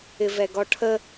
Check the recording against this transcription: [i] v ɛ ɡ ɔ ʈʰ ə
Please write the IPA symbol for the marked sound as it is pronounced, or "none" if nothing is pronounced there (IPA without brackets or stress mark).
ɪ